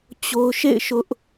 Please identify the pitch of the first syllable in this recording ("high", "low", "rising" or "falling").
high